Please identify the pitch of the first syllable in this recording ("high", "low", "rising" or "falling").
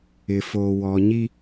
low